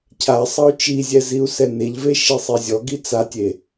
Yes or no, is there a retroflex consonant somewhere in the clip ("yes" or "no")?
no